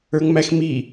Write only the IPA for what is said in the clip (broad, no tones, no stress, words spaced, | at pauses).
ə˞ŋmæxmi